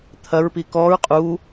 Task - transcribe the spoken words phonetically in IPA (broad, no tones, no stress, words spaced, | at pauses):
t̪ʰɐɹpi kɔɹ qʼu